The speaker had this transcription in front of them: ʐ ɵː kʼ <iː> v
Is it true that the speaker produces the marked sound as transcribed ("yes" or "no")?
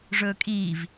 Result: yes